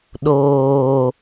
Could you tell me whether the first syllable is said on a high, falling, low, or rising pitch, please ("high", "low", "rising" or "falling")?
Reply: low